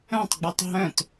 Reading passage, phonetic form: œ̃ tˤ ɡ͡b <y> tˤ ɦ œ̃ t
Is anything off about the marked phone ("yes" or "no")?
yes